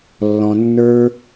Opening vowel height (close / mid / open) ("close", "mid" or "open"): mid